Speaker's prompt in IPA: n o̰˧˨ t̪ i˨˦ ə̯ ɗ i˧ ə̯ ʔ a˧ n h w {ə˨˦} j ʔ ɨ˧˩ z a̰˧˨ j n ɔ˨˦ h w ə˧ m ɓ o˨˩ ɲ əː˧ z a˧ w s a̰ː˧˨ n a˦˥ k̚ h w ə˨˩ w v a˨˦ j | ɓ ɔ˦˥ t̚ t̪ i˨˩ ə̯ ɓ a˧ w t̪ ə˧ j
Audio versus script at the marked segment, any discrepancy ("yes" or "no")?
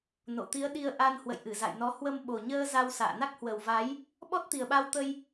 yes